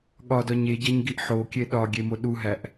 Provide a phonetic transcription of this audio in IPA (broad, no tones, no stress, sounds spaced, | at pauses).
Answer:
ɠ ɒ d ɒ ɲ e ɟ æ ɲ ɡ i ʔ ħ o kʲ e ɗ ɒ ɡʲ e m o ɗ u ɦ æ ʔ